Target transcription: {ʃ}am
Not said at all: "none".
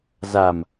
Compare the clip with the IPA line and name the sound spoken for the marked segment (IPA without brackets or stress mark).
z